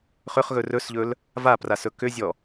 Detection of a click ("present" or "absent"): absent